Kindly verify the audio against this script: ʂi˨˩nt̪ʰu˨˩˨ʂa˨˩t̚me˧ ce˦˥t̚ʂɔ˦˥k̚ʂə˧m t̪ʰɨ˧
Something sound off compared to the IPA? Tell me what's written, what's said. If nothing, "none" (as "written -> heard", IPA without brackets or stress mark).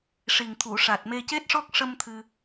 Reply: n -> ŋ